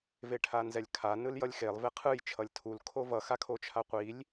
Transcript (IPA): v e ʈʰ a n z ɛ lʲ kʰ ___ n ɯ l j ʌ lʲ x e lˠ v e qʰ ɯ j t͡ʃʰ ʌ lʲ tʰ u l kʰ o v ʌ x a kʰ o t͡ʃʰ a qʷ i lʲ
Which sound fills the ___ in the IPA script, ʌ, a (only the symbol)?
a